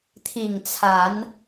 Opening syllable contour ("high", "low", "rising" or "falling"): low